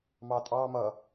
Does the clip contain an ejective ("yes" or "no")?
yes